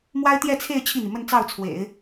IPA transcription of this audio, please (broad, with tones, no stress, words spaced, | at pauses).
mwa˥ɪ̯t̪jɛ˥˧t͡sʰe˥˧ɪ̯ t͡ɕʰi˥˩n̪i˩ mə˥˧nt͡sɑ˥˩ʊ̯t͡sʰwḛ˨˩˦ɪ̯